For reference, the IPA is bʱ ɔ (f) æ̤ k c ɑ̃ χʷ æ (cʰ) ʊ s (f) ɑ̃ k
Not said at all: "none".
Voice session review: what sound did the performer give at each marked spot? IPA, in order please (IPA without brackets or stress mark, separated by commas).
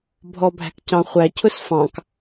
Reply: bʱ, cʰ, f